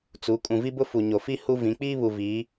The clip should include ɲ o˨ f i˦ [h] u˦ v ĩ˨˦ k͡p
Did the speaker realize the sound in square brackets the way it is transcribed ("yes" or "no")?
yes